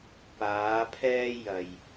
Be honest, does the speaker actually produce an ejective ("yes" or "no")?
no